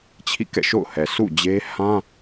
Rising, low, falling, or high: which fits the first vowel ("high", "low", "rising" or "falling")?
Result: falling